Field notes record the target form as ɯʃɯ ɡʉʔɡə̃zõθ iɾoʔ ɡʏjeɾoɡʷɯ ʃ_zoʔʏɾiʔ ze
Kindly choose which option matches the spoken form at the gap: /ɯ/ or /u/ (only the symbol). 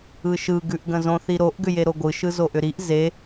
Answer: ɯ